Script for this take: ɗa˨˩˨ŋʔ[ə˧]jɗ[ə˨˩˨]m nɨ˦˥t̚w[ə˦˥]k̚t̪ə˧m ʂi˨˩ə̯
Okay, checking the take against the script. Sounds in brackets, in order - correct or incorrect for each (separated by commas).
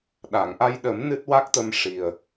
incorrect, incorrect, incorrect